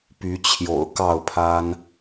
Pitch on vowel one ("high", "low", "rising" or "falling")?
rising